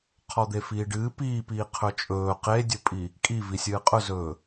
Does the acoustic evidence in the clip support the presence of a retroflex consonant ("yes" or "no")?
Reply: yes